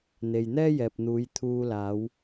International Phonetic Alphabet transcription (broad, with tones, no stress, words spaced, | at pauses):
n̪e˨j n̪ɛː˥jɛː˨p̚n̪uː˨˧j t̪ʰuː˧ laː˨˧w